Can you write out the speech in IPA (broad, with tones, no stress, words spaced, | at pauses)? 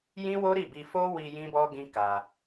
jĩ˦wo˦ɾi˦˨bi˧ fo˦wi˧ jĩ˦bɔ˦ɡĩ˦ ka˧